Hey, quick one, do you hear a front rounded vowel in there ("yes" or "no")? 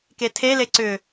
yes